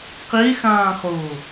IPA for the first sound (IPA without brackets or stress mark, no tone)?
q